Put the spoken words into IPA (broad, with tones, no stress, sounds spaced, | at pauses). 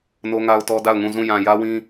n o˦ ŋ a˦ ʊ̯ t ɔ˦ d a˦˨ ʊ̯ ŋ ũ˦˨ z ũ˦˨ j ã˨ j ä˦ w ĩ˦